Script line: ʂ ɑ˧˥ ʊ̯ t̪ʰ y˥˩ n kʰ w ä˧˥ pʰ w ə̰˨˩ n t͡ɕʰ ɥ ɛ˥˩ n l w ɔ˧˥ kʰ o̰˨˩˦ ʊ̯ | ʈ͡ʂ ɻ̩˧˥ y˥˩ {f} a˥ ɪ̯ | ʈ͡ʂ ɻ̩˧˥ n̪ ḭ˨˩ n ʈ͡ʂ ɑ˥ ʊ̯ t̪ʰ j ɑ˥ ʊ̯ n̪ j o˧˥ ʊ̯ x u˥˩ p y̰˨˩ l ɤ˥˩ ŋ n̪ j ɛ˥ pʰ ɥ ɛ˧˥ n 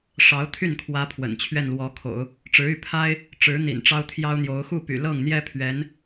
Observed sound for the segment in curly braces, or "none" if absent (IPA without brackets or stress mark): pʰ